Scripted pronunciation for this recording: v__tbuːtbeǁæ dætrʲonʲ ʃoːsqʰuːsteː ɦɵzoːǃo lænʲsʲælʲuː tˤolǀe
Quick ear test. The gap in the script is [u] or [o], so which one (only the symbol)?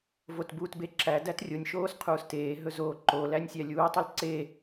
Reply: o